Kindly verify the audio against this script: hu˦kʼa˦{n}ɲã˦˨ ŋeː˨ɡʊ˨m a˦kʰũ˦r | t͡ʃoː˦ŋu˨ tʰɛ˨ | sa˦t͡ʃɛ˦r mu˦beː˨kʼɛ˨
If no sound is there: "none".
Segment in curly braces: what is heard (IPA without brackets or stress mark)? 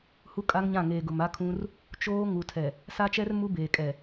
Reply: ŋ